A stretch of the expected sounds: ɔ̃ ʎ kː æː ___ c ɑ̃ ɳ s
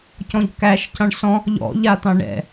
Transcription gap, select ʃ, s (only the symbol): ʃ